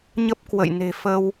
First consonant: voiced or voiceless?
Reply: voiced